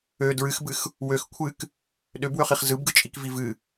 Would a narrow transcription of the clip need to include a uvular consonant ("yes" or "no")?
yes